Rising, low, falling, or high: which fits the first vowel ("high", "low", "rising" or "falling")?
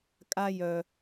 high